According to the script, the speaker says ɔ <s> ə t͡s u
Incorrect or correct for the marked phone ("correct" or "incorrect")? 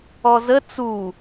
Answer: incorrect